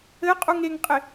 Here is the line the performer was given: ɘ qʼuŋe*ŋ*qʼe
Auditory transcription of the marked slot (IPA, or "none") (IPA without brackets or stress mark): ŋ